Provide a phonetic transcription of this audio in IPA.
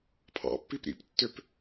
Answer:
pʰ ɑ̰ pː i p ɾ ḭ p tː ø p

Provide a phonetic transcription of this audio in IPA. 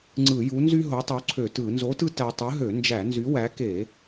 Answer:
ŋ͡ǀ ɯ˧˩˧ j u˨˥ n z y˦ ɦ o˨˥ tˤ u˨˥ ǀʰ ø˧˩˧ t ɯ˧˩˧ n z o˨˥ t ɯ˦ t æ˦ tˤ ɯ˨˥ ɦ ø˧˩˧ n d͡ʒ æ˧˩˧ n z y˨˥ w æ˨˥ k e˧˩˧

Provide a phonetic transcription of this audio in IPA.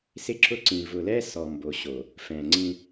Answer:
s ɪ˦ ǁ ʊ˦ ǀ ĩ˨ v ʊ˨ l ɛ˦ s ɔ˨ m b o˨ ɕ o˨ | f ɛ̃˨ ŋ͡ǀ ĩ˦

